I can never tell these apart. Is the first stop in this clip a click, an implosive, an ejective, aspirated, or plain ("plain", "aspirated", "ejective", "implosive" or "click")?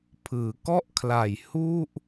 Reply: aspirated